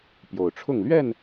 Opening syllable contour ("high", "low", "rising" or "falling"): low